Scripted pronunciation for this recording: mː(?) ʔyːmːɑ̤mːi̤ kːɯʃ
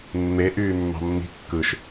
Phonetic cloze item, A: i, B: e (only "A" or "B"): B